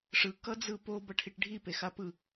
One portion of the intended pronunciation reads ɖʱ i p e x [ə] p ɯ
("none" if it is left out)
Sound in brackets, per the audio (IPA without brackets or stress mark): a